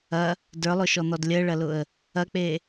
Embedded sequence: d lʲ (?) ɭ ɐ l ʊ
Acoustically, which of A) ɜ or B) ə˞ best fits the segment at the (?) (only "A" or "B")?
A